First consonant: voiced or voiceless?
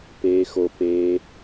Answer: voiceless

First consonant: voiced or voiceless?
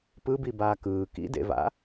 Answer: voiceless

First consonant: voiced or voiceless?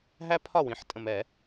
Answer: voiced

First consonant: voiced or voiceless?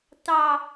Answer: voiceless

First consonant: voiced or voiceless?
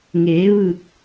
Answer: voiced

